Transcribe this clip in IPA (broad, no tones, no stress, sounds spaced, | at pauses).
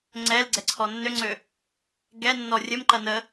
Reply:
ŋ͡ǀ ɛ l ɡ͡ǀ ɛ ǀʰ ɔ nː ø ŋ͡ǀ ø | ɡ ɛ nː ɔ rʲ ə m ǃ ɐ n ə